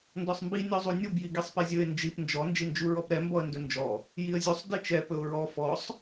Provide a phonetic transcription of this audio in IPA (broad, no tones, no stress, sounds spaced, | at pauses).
n d ɔ sˤ m b i nʲ ɔ zˤ u nʲ u b j i ɡ i sˤ p ɛ zʲ ɵ ɪ̯ n d͡ʒ i p n d͡ʒ ɔ n d͡ʒ i n d͡ʒ u ɹ ɔ p ɾ ɛ m b ɔ ə̯ n d ɵ n d͡ʒ ɔ | j i ə̯ zʲ u sˤ d i t͡ʃ ɛ p ɵ ʊ̯ ɹ ɔ f ɔ sˤ